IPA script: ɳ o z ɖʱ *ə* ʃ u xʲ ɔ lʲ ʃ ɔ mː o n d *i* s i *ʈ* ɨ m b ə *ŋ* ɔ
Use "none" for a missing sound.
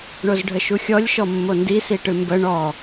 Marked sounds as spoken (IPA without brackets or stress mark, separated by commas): ə, i, ʈ, ɳ